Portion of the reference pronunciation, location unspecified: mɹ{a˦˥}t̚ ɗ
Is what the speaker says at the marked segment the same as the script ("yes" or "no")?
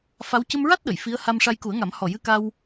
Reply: yes